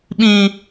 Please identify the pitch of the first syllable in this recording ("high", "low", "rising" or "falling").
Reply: low